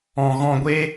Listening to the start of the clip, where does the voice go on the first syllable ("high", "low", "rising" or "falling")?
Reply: low